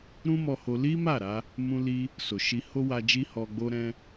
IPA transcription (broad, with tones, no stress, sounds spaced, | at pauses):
ɾ ũ˦ m ɔ˧ h o˧ l i˦ m a˦˨ ɾ a˧ | m ũ˧ l i˧ | s o˨ ʃ i˧ h o˦ w a˧ d͡ʒ i˦ h ɔ˧ ɡ͡b o˦ ɾ ɛ̃˦